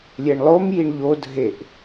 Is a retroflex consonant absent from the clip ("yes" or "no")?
no